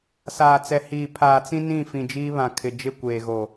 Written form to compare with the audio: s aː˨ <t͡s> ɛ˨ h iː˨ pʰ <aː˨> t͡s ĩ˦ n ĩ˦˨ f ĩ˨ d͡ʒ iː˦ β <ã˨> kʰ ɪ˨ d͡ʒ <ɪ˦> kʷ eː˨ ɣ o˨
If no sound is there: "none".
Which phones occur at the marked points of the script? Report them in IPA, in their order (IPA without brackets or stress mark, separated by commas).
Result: t͡s, aː˨, ã˨, ɪ˦˨